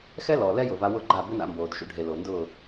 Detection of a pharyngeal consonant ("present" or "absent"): absent